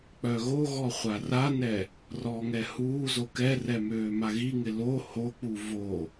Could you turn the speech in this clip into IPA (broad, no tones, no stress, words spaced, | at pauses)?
k͡pœɣoɣɔ χʷaranɛ | rɔːŋɛhuːzo kɛrɛ møːmaɣiŋɪ lo hok͡pu vo